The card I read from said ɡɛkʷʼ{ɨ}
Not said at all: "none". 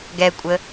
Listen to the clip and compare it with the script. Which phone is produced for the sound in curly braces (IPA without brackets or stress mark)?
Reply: ə